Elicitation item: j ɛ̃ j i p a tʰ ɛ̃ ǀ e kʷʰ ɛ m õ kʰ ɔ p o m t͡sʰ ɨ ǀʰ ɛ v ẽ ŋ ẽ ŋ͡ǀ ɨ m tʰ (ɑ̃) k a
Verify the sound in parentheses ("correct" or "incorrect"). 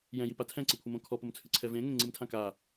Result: incorrect